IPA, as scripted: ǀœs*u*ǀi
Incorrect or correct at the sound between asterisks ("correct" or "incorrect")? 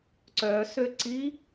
incorrect